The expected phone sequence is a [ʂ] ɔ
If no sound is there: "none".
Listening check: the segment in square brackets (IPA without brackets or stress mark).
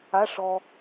ʂ